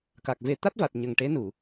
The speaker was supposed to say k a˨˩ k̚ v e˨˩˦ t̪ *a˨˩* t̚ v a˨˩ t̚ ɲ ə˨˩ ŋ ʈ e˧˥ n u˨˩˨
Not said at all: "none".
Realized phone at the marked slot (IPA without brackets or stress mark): a˦˥